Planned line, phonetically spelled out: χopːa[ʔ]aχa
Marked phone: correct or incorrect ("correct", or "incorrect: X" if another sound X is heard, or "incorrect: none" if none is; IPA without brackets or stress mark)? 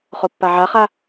incorrect: ʕ